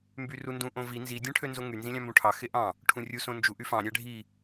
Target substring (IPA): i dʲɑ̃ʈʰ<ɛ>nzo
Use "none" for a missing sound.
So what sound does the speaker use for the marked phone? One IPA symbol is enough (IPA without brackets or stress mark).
ø